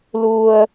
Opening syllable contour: low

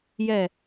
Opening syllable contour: falling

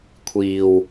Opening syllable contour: low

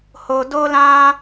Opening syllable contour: low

